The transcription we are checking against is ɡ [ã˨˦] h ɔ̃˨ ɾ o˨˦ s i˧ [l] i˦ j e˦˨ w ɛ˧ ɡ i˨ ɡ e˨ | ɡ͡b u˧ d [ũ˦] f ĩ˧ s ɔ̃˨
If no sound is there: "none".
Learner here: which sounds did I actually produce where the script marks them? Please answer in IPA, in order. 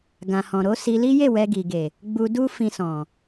ã˨, l, u˦

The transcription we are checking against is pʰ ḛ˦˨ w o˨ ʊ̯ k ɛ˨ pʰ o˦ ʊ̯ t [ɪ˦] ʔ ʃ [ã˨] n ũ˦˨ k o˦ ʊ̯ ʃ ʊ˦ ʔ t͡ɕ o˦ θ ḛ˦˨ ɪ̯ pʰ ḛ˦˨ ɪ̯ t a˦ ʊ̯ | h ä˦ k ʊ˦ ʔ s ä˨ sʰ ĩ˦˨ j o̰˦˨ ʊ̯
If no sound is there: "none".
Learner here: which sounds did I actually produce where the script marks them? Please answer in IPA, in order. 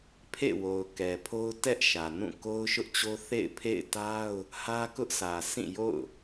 ɛ˦, ä˨

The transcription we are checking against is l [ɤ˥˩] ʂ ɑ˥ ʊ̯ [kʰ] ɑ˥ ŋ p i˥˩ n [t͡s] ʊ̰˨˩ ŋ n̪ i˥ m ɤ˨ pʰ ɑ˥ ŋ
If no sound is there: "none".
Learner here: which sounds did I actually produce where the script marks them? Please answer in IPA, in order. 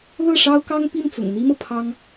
ɤ˥˩, k, t͡s

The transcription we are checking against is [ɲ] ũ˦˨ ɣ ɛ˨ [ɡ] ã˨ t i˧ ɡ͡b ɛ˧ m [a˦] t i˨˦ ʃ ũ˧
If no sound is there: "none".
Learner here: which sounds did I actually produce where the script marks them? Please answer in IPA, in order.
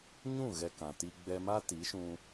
ɲ, k, a˦

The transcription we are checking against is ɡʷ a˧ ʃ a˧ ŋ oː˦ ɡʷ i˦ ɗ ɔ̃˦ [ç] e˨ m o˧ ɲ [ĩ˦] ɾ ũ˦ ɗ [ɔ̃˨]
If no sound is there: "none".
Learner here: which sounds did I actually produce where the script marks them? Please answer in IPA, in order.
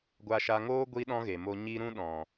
ɣ, i˦, ɔ̃˨

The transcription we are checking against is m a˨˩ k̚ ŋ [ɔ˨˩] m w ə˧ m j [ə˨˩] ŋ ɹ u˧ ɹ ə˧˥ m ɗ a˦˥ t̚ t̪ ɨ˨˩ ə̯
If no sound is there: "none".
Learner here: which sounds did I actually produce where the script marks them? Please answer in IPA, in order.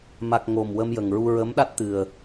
o˨˩, ə˨˩

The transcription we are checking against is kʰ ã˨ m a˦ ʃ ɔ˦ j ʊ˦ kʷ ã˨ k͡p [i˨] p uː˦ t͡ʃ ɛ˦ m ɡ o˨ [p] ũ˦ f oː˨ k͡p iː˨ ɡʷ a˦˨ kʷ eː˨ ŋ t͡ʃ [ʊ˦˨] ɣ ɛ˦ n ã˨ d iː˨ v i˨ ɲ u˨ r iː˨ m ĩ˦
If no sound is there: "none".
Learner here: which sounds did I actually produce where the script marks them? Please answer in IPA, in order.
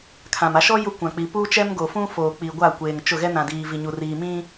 i˨, f, ʊ˦˨

